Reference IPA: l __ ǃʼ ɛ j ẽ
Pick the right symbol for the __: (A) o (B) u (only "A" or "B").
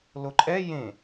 A